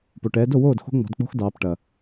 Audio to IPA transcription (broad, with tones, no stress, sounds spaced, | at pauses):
p o˩ ʈ ɛː˩˧ d o˥˩ w oː˥˩ d x o̤˦˥ ŋ͡m ɔ̤˩˧ d k͡p o̤˦˥ x d ɑː˩˧ p ʈ ɐ˩